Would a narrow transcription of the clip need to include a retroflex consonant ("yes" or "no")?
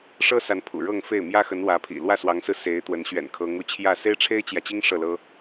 yes